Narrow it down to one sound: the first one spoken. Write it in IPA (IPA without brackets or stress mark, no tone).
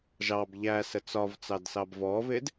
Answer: ʒ